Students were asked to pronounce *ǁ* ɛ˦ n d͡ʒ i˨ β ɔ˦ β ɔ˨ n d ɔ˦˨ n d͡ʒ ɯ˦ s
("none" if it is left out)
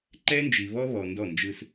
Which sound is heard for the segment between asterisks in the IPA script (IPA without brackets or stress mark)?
ǃ